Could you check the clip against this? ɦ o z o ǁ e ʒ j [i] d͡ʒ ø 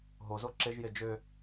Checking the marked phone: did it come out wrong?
yes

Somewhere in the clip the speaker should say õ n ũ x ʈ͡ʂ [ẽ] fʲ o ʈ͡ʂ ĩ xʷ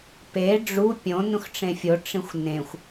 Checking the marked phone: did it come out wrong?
no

